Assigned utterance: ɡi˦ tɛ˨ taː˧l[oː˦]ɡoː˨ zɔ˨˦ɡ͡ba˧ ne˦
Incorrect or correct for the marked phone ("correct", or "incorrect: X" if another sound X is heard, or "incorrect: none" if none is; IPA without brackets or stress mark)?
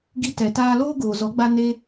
correct